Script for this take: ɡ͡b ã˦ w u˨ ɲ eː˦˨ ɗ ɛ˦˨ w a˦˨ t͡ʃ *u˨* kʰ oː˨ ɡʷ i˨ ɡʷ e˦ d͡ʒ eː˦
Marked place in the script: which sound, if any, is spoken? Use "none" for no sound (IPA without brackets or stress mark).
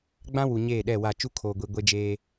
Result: u˦